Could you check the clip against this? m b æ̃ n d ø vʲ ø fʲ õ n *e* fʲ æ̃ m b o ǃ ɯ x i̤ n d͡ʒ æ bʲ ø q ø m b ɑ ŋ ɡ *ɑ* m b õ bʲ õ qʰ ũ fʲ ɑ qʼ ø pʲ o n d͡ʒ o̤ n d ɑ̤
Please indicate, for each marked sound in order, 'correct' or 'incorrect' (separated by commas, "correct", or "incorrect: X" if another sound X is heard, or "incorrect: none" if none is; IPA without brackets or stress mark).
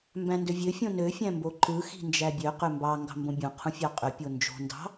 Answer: incorrect: ø, incorrect: ɑ̤